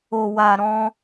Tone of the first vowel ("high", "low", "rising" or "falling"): low